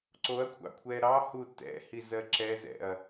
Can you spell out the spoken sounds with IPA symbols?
ǀ o ɐ̯ kʷʰ ɑ̰ kʷʰ ɛ ɾ ɑ h u t ɛ̰ h i z ɜ ǁ ɛ z ɛ̰ ɐ̯

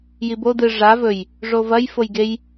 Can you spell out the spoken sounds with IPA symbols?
j i b o d ɨ ʐ a v ɵ j | ʐ o v ɐ j f o j ɡ e j

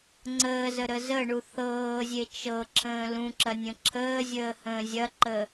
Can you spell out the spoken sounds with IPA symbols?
ŋ͡ǀ əː z ə ɾ ə z ə ɳ u θ ɤː zʲ e t͡ʃ ɤ ǁʰ ə̃ː l ũ ǁ ɐ nʲ ə̃ ǁʰ əː zʲ əː h ə̃ː zʲ ɐ ǃ ə

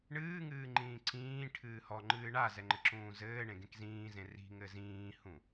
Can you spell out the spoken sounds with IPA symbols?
ɳ ɨː ŋ ɨː ŋ͡ǃ ĩː ǀ ĩː ʈʰ ɨː h ɔ ŋ͡ǃ ɨː ɳ a z ɛ ŋ͡ǃ ɘ ǁ ũː z ɘː ɳ ẽ ɡ ẽ k z ĩː z ẽ r i̤ ŋ ɘ z ĩː h ũ

